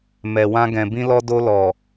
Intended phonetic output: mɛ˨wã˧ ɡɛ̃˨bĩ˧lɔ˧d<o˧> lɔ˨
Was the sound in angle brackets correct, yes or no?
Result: yes